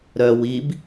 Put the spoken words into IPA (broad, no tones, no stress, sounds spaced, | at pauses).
ɾ œ w i b